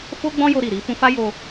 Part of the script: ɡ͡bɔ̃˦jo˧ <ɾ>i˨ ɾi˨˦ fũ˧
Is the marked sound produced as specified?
yes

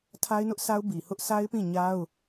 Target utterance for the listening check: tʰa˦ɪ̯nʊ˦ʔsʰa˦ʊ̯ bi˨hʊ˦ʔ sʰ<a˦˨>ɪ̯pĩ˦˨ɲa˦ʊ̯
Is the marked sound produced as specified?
no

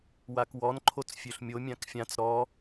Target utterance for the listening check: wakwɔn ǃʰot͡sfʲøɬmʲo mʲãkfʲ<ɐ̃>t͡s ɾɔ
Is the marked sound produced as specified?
no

